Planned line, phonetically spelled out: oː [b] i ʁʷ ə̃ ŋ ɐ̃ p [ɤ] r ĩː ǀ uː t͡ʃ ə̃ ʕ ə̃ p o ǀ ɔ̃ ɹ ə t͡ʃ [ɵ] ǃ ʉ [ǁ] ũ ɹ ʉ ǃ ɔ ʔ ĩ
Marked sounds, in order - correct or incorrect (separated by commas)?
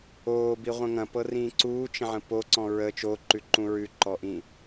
correct, correct, incorrect, incorrect